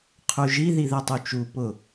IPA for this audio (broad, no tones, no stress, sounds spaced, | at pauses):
qʰ u ʒ i ð i ð ɛ tˤ u t͡ʃ u p ʊ